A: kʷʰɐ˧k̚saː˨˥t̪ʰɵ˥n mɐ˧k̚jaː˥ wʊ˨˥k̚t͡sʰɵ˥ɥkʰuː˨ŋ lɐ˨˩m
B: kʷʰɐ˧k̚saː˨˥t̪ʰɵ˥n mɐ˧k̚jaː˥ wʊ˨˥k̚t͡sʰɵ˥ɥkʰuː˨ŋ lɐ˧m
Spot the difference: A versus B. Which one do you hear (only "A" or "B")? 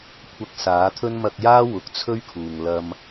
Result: B